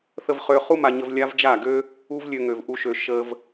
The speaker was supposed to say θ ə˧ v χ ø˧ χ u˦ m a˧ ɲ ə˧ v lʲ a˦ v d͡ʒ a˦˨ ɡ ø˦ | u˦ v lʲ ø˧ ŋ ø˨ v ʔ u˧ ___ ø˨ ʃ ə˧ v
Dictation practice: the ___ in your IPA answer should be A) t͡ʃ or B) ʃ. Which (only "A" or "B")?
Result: B